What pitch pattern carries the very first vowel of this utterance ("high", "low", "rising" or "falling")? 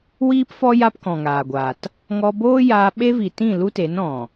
high